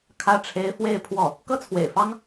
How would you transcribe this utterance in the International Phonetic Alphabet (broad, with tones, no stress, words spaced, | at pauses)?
kʰä˥ʈ͡ʂʰe˥ɪ̯ fwe˥˧ɪ̯pʰwɔ˥˩ | kɤ˥t͡sʰwḛ˨˩ɪ̯fɑ˥ŋ